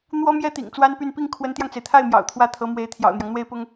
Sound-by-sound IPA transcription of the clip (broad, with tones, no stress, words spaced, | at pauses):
n̪wɔ˥mjɛ˥ t̪ḭ˨˩ŋt͡swa˥npy˥˧n pi˥˩ŋkʰwə˧˥nt̪jɑ˧ŋt͡se˩ɪ̯ t̪ʰa˥˩ɪ̯ mjɑ̰˨˩ʊ̯t̪ʰwä˥˩t̪ʰɤ˧˥mwe˧˥ɪ̯ t̪ʰjɑ̰˨˩ʊ̯n̪jɑ˦ŋn̪we˥ɪ̯pʊ˥ŋ